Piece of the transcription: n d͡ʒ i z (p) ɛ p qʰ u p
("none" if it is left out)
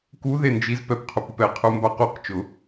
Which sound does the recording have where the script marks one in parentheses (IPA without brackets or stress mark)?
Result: p